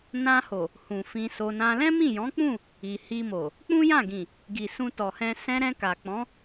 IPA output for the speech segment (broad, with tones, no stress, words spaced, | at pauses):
nã˧ho˨ | hũ˨fĩ˧so˧nã˦ lɛ̃˦mĩ˦˨jɔ̃˨˦k͡pũ˦˨ | i˨hi˧mo˨ | k͡pũ˦jã˦˨ɡĩ˨ | ɡi˨sũ˧ tɔ˨hɛ̃˧ sɛ̃˧ɾɛ̃˧ ka˨k͡pɔ̃˨˦